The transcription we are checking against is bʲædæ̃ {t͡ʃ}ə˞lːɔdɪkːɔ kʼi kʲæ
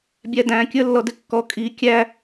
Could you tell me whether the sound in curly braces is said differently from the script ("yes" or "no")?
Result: yes